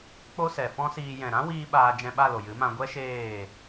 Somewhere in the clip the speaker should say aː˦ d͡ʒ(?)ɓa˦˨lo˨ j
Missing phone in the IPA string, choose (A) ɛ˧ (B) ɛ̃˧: B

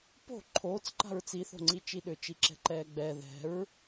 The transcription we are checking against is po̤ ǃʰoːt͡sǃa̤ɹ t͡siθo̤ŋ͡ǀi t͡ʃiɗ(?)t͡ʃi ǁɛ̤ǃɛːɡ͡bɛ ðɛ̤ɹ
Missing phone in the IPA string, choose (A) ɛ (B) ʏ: B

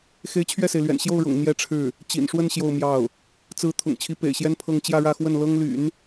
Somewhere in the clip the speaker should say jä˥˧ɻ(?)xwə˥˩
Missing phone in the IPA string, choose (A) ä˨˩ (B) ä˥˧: B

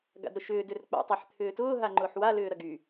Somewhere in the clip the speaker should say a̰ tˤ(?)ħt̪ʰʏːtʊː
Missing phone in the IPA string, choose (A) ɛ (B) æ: A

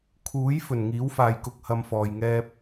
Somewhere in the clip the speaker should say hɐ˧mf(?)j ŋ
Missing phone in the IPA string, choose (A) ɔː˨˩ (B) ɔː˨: B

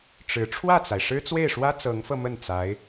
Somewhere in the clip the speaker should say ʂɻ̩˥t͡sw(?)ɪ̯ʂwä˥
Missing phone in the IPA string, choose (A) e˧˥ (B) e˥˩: B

